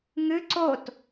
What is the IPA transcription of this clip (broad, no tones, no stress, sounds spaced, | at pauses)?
ŋ ɨ ǀ o t